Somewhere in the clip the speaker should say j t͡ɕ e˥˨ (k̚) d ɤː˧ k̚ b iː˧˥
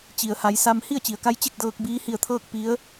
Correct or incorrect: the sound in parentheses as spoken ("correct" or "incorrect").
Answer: correct